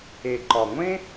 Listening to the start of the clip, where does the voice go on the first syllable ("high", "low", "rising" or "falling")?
low